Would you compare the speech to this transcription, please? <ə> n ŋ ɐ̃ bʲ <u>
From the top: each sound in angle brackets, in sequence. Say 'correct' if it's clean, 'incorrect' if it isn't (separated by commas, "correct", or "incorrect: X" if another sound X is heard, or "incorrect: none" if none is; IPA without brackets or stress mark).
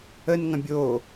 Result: correct, incorrect: o